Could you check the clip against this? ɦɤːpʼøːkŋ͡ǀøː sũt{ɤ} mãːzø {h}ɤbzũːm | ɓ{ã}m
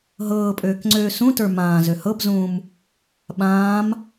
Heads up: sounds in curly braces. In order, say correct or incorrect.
incorrect, correct, incorrect

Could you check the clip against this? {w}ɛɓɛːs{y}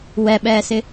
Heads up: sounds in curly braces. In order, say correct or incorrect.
correct, incorrect

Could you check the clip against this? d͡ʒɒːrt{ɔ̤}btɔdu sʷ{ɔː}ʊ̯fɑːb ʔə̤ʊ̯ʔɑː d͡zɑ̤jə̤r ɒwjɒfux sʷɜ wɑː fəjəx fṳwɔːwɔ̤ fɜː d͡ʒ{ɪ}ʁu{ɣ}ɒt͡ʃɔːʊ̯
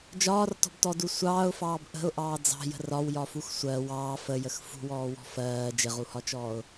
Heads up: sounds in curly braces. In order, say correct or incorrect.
correct, incorrect, correct, incorrect

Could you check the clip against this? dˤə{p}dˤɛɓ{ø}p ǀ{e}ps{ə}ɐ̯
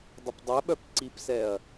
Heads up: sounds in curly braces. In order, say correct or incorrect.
correct, incorrect, incorrect, incorrect

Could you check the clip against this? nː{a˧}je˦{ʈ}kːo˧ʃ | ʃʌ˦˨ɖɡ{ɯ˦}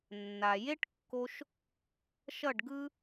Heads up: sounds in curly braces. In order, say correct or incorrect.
incorrect, correct, correct

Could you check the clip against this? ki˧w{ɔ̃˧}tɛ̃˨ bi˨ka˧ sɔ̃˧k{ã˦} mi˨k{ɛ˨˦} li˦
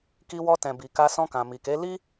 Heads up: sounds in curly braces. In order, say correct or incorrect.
incorrect, incorrect, incorrect

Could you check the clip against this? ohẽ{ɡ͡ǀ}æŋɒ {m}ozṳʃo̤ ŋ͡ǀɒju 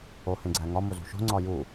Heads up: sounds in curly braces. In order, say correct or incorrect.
correct, correct

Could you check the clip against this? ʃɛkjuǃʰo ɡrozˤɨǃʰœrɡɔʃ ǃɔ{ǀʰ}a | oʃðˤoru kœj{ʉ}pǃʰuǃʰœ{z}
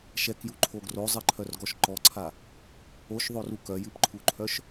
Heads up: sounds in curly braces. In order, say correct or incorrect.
correct, incorrect, incorrect

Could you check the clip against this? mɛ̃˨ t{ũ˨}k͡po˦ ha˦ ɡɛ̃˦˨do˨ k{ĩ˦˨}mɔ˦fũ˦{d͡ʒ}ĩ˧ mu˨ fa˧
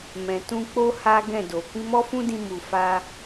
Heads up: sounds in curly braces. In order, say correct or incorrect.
incorrect, incorrect, incorrect

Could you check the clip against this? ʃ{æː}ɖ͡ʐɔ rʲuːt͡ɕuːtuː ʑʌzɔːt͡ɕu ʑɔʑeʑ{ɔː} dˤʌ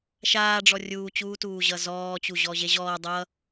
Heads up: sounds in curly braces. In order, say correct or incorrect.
incorrect, correct

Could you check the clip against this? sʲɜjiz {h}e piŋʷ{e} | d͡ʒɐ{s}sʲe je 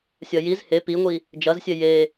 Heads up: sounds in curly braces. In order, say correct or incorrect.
correct, incorrect, incorrect

